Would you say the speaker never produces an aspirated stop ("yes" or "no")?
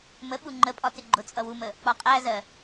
yes